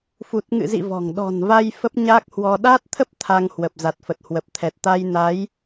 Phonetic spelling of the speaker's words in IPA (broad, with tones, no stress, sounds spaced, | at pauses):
f u˨˩ t̚ ŋ ɨ̰˧˨ z ḭ˧˨ v ɔ̤˨˩ ŋ ɗ ɔ̤˨˩ n v a˧ j f ə˦˥ p̚ ɲ aː˦˥ k̚ h w ɔ˧ ɗ aː˦˥ t̚ t̪ʰ ə˦˥ p̚ t̪ʰ a˧ ŋ h w ə˨˩ p̚ z a˨˩ t̚ f ə˨˩ t̚ h w ə˨˩ p̚ t̪ʰ ɛ˨˩ t̚ t̪ a˧ j n a˨˦ j